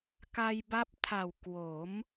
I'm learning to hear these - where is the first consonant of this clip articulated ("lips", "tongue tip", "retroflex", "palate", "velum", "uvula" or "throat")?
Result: velum